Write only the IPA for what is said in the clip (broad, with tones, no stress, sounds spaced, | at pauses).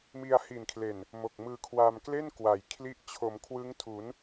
m i˧ a̯ h i˨˩ n kʰ l e˨˩ n | m o˨˩ k̚ m ɯː˧ kʰ w a˧ m k l e˥˩ n k w a˩˦ j kʰ l i˦˥ ʔ t͡ɕʰ o˩˦ m kʰ w ɯ˦˥ ŋ tʰ u˩˦ n